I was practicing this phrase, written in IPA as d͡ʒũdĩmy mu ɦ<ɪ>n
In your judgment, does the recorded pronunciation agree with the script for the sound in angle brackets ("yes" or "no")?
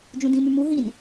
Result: no